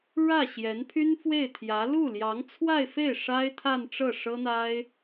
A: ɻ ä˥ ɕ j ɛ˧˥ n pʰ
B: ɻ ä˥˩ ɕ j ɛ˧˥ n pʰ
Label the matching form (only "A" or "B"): B